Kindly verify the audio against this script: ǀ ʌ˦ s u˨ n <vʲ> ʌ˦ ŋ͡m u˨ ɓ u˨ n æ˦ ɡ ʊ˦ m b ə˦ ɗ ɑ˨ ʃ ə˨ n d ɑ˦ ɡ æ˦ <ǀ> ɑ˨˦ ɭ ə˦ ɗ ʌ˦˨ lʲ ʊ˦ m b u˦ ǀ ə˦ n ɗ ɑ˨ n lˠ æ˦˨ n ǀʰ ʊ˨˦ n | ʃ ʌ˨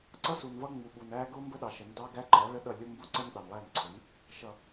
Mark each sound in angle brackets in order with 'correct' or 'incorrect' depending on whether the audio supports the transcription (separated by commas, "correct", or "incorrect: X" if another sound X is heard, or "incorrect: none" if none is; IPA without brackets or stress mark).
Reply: incorrect: v, incorrect: ǃ